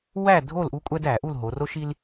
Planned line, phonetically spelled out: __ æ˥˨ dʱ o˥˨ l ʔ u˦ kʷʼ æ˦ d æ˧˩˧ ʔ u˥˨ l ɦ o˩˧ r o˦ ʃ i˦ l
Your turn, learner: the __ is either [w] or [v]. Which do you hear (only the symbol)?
w